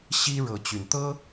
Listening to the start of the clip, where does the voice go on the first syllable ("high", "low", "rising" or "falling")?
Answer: high